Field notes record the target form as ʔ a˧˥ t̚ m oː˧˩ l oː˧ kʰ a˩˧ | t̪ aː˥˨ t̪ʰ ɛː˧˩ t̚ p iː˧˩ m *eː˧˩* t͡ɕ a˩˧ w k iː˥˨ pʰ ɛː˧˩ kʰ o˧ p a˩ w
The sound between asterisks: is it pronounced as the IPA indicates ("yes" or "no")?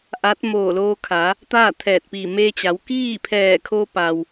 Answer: no